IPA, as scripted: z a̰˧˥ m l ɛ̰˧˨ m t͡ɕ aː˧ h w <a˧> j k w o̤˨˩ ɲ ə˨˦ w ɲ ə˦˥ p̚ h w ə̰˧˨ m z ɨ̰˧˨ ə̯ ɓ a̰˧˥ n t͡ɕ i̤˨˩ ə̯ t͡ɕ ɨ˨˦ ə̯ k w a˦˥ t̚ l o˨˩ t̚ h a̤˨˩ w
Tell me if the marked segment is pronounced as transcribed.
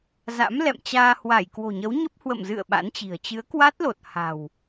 no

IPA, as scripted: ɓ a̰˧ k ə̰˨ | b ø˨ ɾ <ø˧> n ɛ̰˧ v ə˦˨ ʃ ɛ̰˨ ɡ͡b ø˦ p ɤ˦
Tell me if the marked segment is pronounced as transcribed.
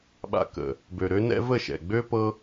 yes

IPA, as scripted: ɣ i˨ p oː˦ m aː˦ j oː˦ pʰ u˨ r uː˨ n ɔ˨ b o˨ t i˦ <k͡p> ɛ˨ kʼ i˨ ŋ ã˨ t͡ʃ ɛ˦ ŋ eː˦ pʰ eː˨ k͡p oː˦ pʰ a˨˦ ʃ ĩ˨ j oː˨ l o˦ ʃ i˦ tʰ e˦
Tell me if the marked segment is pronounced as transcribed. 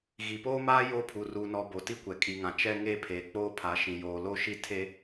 no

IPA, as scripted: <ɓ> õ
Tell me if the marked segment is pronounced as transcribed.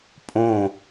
no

